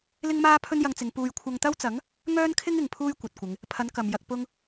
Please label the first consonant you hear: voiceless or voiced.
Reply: voiced